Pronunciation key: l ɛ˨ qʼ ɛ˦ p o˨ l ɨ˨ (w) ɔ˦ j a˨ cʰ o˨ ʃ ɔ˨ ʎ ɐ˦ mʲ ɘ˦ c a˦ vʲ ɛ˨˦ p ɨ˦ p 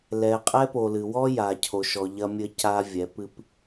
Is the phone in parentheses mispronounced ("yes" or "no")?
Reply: no